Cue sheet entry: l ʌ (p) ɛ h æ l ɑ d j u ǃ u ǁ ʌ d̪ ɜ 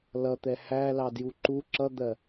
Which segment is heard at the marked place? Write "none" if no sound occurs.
t̪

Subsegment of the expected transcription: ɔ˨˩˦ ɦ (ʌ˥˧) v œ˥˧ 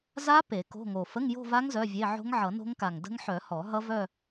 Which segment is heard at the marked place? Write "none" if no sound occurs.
ʌ˦˥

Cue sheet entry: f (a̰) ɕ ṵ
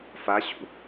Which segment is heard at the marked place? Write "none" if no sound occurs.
a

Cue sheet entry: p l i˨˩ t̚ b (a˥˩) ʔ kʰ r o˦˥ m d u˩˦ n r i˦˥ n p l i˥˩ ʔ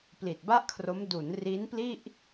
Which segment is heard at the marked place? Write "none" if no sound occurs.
a˥˩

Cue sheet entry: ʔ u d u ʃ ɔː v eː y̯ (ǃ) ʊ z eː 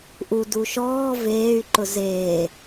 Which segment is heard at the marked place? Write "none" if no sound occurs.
ǃ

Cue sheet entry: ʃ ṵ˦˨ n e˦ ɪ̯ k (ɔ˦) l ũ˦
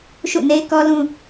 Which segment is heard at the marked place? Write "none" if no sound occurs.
ɔ˦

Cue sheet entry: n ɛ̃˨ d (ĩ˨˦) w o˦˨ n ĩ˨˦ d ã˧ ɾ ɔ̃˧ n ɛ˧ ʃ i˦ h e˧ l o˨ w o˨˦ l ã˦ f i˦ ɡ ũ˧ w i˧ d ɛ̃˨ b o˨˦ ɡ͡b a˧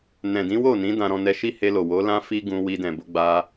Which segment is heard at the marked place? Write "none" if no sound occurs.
ĩ˨˦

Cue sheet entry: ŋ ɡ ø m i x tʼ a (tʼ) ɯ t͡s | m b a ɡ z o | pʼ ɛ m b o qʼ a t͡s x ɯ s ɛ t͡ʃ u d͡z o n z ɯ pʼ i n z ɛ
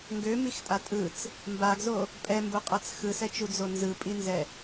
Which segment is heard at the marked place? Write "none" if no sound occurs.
tʼ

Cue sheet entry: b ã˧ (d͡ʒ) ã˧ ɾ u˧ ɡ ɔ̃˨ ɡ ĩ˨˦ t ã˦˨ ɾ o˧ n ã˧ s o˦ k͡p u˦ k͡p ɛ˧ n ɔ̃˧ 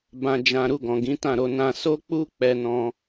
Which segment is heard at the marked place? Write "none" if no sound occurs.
d͡ʒ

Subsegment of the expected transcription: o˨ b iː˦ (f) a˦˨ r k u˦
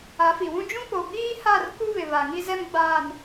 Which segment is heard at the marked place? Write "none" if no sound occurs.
h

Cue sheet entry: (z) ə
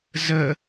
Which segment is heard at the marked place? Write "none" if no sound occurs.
z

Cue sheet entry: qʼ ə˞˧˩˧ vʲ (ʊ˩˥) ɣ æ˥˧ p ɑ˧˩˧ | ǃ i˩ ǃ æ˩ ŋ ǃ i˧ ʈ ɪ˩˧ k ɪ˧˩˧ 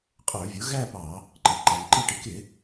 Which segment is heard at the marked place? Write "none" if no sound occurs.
ʊ˩˥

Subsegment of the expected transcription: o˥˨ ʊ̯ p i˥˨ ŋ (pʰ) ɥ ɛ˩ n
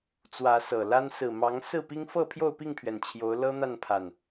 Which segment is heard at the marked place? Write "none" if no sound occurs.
pʰ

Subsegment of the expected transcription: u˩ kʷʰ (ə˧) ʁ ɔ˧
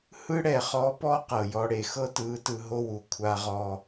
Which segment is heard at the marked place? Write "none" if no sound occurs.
a˧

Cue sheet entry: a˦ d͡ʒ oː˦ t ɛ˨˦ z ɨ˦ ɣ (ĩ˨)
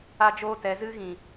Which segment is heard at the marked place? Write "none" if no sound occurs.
ĩ˨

